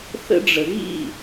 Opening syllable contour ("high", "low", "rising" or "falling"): high